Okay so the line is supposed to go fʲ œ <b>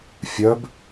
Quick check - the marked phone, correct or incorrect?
correct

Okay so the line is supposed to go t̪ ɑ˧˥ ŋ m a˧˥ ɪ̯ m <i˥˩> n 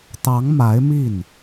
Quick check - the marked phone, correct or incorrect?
correct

